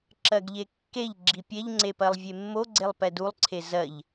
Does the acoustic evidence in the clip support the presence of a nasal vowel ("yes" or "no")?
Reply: no